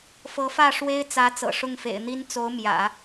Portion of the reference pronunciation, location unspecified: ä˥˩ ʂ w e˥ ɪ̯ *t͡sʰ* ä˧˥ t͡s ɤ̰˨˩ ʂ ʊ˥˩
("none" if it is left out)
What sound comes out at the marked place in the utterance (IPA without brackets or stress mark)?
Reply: t͡s